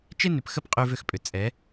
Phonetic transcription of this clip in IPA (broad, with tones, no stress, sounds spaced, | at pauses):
t͡ʃ e˦ n ʏ˨ p x ə˦ p qʼ ʉ˦ v ʏ˦ x pʼ ʏ˨ t͡sʼ ɛ˨˦